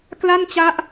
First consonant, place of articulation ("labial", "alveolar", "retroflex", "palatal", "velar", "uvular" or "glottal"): velar